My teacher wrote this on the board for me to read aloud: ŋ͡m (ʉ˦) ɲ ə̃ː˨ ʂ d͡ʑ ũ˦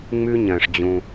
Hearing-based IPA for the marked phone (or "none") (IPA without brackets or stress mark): ʉ˦